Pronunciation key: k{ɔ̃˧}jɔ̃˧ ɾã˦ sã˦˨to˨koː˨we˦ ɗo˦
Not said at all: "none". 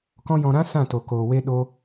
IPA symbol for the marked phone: ɔ̃˦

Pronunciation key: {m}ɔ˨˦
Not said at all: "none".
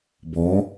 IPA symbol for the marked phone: b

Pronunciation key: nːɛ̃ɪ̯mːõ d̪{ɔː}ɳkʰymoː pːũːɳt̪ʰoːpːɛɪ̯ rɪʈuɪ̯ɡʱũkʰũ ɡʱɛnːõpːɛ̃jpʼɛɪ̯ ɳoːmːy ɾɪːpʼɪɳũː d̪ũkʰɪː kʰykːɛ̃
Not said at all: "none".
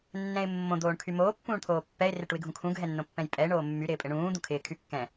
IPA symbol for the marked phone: oː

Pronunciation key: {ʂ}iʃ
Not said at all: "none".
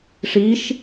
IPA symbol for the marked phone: ʂ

